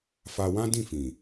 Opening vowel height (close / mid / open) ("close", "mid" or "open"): open